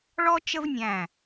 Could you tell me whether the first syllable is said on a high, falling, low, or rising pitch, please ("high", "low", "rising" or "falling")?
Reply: high